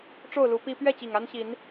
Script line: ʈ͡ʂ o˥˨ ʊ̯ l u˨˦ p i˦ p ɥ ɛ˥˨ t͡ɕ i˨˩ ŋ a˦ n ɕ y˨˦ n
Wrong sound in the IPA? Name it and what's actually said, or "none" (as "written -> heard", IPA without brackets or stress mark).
y˨˦ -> i˨˦